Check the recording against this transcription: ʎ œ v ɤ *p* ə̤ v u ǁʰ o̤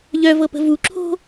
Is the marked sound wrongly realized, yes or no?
no